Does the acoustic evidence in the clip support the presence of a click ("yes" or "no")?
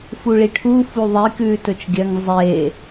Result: no